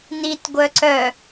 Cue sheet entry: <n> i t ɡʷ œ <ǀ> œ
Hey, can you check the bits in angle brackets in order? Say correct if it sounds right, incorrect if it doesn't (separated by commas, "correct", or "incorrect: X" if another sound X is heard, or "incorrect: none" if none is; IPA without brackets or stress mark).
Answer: correct, correct